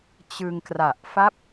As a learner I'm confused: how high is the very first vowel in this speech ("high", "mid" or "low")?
high